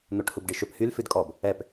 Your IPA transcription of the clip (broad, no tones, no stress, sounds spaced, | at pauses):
n̪ o ʈ h u b ɖ i ʃ ɵ p h y l f ʉ d kʼ ɔ b | ɛ p